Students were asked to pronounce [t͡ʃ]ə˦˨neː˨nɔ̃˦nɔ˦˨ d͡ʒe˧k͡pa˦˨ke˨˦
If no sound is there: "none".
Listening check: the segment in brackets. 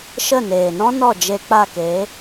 ʃ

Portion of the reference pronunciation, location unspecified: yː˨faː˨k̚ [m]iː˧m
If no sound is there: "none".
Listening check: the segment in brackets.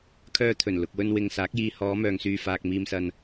m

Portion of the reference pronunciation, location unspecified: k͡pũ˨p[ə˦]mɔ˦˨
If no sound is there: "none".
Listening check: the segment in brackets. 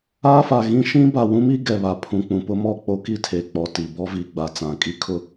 ʊ˦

